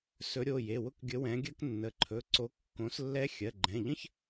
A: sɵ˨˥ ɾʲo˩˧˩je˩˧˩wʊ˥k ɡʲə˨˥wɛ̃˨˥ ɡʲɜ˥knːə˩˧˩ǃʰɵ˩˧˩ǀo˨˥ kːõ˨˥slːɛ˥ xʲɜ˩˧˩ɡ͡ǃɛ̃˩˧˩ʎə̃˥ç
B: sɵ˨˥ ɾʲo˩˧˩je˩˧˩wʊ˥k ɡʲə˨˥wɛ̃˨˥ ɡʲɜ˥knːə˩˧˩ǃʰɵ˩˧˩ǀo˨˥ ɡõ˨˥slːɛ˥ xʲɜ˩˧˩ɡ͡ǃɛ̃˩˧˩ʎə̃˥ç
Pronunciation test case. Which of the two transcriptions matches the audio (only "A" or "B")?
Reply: A